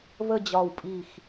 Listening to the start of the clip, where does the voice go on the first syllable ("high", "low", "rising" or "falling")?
falling